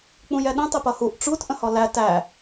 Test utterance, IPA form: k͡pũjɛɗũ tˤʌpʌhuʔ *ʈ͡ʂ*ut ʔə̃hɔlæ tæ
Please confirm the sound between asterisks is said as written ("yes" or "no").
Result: yes